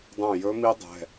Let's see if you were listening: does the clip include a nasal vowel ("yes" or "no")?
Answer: yes